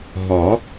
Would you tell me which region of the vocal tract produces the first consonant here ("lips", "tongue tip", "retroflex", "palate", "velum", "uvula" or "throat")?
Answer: throat